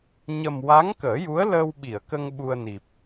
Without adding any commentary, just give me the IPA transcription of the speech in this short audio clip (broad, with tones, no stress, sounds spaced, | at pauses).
ɲ ə˨˩ m w a˧˥ ŋ k əː˨˩˦ j u˧˥ ə̯ l əː˧ w ɓ i˨˩˨ ə̯ k ə˧ ŋ ɓ u˧ ə̯ n i˨˩ p̚